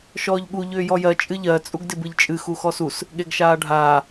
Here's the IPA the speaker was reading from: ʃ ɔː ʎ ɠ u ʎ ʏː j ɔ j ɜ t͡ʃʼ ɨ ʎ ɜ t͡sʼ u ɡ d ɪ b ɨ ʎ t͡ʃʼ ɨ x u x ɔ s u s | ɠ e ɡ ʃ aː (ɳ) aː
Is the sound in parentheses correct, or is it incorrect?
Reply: incorrect